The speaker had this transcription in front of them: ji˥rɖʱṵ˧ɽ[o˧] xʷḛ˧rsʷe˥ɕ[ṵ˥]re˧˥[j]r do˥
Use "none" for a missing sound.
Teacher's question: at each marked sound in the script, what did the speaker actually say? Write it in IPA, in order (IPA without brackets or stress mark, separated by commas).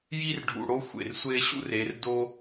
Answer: o˥, ṵ˥, none